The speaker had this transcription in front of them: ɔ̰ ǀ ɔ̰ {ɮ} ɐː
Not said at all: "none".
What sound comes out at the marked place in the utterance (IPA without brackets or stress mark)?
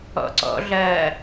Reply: ɮ